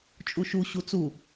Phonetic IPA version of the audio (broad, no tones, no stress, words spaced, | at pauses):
t͡ʃʼuʃu ɕut͡su